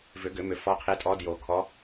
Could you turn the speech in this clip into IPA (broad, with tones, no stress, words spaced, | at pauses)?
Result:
vʏ˨˩˦ɡʏ˨˩˦mʏ˨˩˦ fɔ˨˦qʰe˨˦tʼɔ˨˦ djo˨˩˦ kʰɔ˨˦